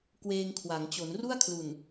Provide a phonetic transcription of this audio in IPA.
kweː˧ŋkʰwa˩˦ŋ t͡ɕo˩˦nru˥˩a̯kʰlu˨˩n

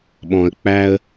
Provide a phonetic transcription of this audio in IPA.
ɓɔ̃˧ə̯k͡pæ˥ə̯

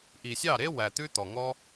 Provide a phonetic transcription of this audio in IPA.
ʔi˨sʲɑ˦˨ɾe˦ wæ˨ t̪ʉ˦t̪ɔ˨ŋɔ˦

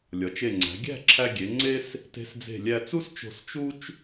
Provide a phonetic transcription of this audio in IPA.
lʲɒ˩˧t͡ʃe˧˩ŋ͡ǀæ̤˩˧ ɡʲæ̤˥˧ǁʰæ˧ ɡʲe˩˧ ŋ͡ǀe˥s | te̤˧sd͡ze̤˧˩ lʲæ˧ t͡su˥st͡ʃo̤˧˩s t͡ʃu˥t͡ʃ

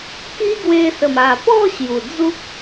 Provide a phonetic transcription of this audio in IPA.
ki˦ɡwe˧ sə˨˩ma˨˩pɔ˥˧ ɕju˨˩d͡zu˦k̚

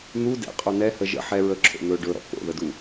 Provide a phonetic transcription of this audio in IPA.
n̪u dɛ̰qʼo nɛhə ʒə̰ ħɛ ɹəǁʰo̰ n̪ɵ ɖɵɾɔ̰ ko̰ðədu

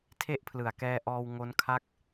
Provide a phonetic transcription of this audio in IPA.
tʰe˥˩ʔpʰlɯ˨˩a̯kɛː˧ʔɔː˧w ŋo˦˥nkʰa˥˩k̚

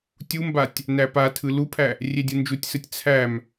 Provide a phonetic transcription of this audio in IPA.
tʲumbatʲ | næpatʰɯ lupʰæ | rʲedʲɯnd͡ʒutʲsɯtʲ t͡sʰæm

